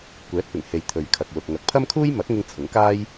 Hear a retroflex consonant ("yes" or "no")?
no